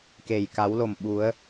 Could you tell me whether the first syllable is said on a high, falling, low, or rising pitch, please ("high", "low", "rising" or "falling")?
low